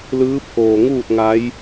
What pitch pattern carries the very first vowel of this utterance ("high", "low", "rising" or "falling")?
rising